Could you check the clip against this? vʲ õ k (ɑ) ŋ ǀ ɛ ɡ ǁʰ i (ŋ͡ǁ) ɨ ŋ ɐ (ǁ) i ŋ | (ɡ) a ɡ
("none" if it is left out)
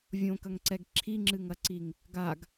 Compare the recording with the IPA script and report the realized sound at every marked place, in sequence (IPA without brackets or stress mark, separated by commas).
ɐ, ŋ͡ǁ, ǀ, ɡ